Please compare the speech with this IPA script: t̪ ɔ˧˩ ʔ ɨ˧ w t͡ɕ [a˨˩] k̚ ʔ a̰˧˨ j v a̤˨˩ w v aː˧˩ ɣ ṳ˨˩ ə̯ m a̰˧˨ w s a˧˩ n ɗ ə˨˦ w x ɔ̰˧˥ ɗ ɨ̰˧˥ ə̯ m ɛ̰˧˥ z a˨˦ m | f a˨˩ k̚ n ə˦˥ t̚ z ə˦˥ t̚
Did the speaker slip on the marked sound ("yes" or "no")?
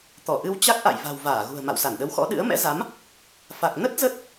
yes